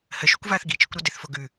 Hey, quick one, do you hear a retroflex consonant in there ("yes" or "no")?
no